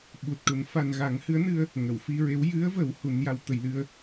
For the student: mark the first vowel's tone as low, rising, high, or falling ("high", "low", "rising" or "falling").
low